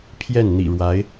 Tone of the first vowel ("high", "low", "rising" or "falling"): falling